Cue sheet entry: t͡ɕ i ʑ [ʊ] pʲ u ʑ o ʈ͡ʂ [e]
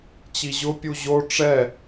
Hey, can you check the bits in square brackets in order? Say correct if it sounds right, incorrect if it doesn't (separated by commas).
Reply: correct, incorrect